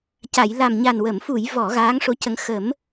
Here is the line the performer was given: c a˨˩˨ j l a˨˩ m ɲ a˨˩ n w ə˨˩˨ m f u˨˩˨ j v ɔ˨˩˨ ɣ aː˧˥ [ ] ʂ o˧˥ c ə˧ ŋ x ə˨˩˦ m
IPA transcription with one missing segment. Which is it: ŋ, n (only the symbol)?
ŋ